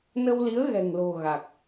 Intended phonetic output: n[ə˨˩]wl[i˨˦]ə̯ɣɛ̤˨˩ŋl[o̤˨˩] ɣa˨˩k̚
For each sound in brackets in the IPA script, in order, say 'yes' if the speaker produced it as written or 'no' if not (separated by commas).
no, yes, yes